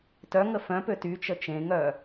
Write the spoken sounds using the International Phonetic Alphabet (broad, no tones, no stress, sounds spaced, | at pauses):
t œ ŋ ə f œ̃ p ø t y t͡ʃ ə t͡ʃ ẽ ŋ œ